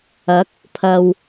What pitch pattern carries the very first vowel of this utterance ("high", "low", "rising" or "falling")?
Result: rising